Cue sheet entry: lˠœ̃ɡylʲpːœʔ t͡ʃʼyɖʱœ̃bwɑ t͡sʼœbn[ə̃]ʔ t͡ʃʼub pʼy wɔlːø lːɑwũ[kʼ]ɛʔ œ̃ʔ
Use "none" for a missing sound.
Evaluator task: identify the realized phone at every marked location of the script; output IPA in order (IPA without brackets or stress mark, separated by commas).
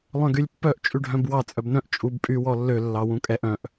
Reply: œ̃, kʼ